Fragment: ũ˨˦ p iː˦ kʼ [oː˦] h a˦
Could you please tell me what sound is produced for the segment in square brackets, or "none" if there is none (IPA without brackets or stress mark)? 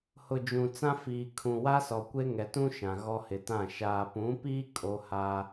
o˦